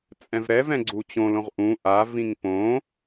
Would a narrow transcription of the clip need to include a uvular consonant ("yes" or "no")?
yes